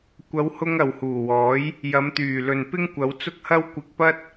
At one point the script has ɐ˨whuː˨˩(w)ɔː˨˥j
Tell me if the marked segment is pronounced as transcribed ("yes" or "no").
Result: yes